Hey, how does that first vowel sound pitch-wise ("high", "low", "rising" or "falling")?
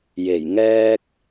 low